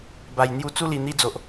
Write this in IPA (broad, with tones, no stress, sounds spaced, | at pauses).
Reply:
b a˨˩ j n̪ j u˧ t͡s u˦ l i˨˩ n̪ i˧ d͡z o˨ ʔ